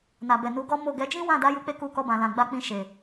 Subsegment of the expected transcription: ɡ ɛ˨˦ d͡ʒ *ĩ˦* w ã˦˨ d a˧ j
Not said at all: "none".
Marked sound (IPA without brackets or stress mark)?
ĩ˦